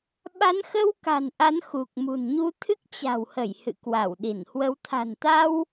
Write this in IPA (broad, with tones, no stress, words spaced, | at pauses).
ɓa˨˦nxə˧w ka̤˨˩nʔa˨˦n xu˨˩k̚mṳ˨˩n ɲu˧ t̪ʰɨ˦˥k̚t͡ɕa̤˨˩whə˧˩j hɨ̰˧˨kwa˧˩wɗi˧˩nhwə˨˦w t̪ʰa̤˨˩nt̪a˧w